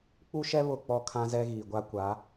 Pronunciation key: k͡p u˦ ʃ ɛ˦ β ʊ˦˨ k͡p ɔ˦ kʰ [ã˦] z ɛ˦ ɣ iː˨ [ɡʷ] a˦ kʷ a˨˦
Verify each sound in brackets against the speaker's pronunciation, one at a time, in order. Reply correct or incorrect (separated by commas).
correct, correct